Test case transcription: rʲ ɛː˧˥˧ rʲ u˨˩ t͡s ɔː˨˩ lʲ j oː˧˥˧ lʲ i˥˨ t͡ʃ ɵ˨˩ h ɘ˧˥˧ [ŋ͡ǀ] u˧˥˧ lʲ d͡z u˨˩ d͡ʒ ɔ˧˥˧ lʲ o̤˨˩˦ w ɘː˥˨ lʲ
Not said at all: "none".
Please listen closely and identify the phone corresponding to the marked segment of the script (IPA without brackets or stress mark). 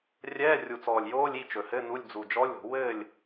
n